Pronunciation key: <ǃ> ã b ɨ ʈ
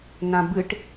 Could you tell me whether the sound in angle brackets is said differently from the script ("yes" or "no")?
yes